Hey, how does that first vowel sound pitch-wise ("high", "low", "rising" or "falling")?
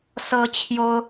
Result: high